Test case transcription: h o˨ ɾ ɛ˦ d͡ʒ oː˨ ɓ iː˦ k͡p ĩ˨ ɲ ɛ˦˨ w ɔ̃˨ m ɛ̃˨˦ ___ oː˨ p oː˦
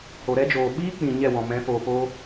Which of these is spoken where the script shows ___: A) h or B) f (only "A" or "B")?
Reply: B